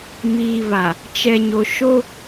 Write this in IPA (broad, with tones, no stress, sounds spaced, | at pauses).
m iː˨ β a˨ | t͡ʃ ɛ˨ ɲ o˨ ʃ o˦